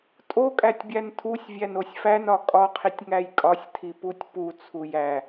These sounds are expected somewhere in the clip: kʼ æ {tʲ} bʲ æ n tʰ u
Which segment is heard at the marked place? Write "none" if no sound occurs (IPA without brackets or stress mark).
tʲ